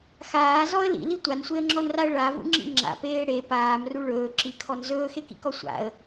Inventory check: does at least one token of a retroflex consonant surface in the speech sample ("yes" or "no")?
yes